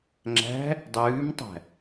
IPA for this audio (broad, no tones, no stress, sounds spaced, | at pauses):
ŋ͡ǁ æ̤ | dˤ ʉː m tˤ æ̤